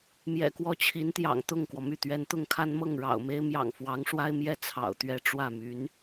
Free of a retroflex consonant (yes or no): no